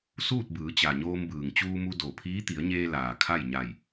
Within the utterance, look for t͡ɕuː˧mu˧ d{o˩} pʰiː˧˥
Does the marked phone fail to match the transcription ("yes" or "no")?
no